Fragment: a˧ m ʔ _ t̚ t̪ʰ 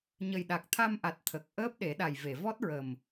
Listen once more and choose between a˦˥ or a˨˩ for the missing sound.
a˨˩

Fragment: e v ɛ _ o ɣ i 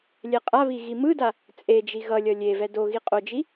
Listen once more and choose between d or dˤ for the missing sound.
d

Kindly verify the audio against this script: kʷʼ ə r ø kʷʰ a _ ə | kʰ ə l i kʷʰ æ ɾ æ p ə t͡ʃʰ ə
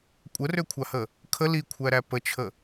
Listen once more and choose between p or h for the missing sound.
h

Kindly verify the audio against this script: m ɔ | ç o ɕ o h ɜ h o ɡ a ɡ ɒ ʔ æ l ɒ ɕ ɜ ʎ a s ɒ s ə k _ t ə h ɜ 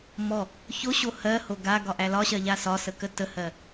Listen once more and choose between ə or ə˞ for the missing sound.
ə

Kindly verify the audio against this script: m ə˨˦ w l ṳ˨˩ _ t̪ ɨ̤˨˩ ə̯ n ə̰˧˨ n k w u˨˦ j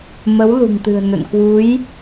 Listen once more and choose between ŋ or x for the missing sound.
ŋ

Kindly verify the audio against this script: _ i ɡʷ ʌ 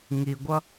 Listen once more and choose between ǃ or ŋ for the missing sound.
ŋ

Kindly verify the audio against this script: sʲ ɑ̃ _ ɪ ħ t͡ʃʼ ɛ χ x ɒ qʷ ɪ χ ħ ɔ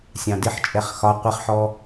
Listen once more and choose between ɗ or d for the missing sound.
d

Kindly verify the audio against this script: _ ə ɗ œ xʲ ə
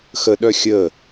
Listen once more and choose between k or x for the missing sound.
x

